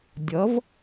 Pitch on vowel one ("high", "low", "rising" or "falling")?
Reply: rising